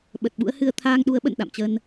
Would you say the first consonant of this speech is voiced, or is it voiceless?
voiced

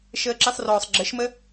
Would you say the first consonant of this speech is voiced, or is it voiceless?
voiceless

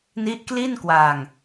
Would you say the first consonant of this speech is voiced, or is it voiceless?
voiced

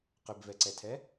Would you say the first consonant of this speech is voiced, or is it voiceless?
voiceless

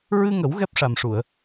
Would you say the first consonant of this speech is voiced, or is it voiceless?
voiced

